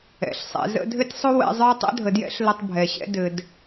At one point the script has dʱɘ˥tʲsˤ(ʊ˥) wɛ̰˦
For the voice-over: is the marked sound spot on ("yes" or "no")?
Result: yes